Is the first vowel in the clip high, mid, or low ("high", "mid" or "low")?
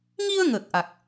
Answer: high